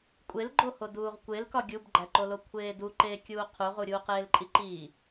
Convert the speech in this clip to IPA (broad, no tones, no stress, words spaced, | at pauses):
kʷʼelɡ͡ǃoho duːʁkʷelkɒ ɡʲubɡ͡ǃæǃolo kʷʰeːdu ǃeːkʲuːqʰuʁu ɾʲuːqeːlǃʼiǃiː